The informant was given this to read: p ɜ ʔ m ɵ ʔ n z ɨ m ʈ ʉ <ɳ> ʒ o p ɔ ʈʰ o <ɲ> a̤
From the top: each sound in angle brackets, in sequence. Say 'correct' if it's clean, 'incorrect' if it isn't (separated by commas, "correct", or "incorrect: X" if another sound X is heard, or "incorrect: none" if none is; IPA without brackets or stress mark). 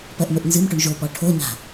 correct, correct